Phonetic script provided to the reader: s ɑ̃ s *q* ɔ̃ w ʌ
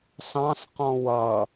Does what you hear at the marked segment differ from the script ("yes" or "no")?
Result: no